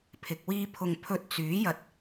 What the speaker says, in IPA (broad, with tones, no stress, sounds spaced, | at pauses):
pʰ ɪ˨ k̚ w iː˥ pʰ ʊ˧ ŋ pʰ ɵ˧ t̚ t͡s yː˨˥ j ɐ˧ t̚